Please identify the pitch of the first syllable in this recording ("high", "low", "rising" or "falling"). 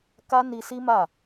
high